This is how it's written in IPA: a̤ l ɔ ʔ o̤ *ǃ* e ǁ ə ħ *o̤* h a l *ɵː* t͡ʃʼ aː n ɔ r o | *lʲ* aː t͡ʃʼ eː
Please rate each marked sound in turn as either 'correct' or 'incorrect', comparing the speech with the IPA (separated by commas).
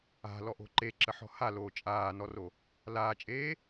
correct, incorrect, incorrect, incorrect